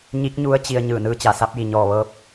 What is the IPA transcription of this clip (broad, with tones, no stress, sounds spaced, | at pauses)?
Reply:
ɲ i˧˥ k̚ ɲ u˧˥ ə̯ t͡ɕ i˧ ə̯ ɲ ɯː˧˩ n ɯː˧˥ t͡ɕ a˩ s a˧˥ p̚ j i˩ ɲ ɔː˧˩ ʋ ɤː˧˥ p̚